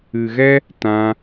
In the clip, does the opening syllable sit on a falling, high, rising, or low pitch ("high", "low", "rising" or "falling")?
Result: low